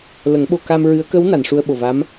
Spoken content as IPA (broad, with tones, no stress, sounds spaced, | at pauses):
l ə˨˩˦ ŋ ɓ o˧ k a˧ m ɹ ɨ˧˥ ə̯ k ə˧˥ w n a˨˩˨ n ʂ u˧ ə̯ ɓ o˨˩ v a˧˥ m